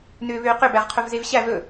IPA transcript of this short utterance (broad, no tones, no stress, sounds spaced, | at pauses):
n ʏː β ʏː q ʏ b æ ʁ qʰ ɵ v z e v ɕ æ v ɵ